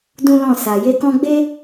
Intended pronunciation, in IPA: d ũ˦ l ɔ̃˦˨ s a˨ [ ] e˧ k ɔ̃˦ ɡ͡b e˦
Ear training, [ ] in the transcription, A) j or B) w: A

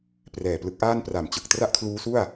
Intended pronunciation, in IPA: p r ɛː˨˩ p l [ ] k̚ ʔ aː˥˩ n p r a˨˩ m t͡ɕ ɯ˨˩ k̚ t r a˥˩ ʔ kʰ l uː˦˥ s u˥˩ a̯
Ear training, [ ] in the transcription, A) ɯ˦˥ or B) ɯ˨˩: A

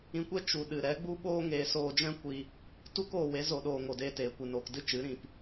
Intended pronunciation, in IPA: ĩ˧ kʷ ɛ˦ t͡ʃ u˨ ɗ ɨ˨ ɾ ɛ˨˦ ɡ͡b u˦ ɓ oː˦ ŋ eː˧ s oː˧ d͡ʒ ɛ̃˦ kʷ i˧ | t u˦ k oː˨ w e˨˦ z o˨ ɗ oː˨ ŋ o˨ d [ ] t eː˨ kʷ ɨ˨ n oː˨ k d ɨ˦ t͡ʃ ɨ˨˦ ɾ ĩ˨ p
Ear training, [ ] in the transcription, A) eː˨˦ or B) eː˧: B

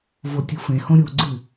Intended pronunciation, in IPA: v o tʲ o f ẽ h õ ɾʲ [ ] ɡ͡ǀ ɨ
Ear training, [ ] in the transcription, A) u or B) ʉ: A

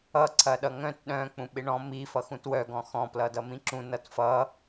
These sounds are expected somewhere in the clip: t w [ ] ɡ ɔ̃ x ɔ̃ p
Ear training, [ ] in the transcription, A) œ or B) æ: A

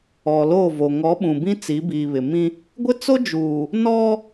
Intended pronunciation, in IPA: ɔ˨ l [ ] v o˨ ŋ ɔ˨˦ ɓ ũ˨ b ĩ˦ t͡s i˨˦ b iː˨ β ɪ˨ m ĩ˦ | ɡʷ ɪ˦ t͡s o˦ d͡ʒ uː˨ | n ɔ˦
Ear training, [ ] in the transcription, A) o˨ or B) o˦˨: B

